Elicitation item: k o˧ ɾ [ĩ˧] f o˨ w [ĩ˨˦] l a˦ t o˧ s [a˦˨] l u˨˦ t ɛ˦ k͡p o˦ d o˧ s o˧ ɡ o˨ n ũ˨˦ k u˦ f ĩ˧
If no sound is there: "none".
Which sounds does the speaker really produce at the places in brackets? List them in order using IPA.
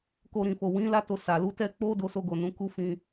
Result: ĩ˨, ĩ˨˦, a˨

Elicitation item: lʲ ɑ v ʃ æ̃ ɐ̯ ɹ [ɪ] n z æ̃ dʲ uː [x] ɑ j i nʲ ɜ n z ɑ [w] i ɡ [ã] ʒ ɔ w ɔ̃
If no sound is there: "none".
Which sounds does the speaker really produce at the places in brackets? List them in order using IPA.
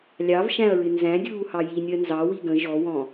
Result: ɪ, h, w, ə̃

